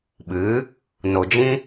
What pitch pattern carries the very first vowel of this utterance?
rising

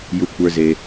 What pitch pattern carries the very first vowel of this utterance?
low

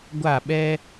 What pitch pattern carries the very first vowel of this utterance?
falling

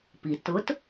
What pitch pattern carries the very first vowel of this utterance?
low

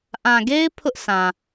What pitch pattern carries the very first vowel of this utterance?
low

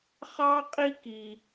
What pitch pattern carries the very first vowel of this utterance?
high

